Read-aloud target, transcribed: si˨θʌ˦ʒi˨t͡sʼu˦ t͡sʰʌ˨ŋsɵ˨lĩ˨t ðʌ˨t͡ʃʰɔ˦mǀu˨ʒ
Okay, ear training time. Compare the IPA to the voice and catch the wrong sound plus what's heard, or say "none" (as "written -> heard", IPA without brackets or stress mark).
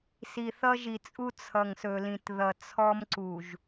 t͡ʃʰ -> t͡sʰ